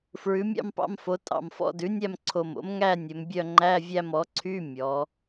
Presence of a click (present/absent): present